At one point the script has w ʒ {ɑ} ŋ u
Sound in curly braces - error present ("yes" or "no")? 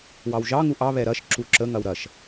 no